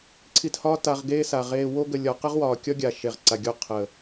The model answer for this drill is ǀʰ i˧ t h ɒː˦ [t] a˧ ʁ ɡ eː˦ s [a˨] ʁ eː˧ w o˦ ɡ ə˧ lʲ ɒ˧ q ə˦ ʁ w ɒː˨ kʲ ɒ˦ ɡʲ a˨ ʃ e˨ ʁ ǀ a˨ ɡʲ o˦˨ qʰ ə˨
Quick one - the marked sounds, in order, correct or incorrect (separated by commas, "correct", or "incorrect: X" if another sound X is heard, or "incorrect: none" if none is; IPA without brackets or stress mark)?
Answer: correct, correct